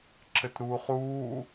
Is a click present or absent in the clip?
present